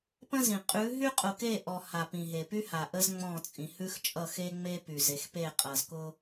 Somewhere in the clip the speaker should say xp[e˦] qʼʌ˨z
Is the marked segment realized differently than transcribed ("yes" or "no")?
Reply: yes